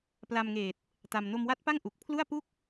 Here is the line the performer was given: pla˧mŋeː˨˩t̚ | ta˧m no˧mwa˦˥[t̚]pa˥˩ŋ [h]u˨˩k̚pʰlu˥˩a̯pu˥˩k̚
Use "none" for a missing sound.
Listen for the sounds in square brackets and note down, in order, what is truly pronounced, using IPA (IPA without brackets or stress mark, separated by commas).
t̚, ʔ